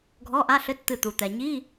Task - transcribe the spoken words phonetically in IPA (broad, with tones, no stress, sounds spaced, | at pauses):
ɡʱ ɔ˧˥˧ ʔ a˧˥˧ ɬ ɘ˧˥˧ t t̪ ɨ˧˩ t̪ u˩ t̪ ɛ˩ ɲ i˧˥˧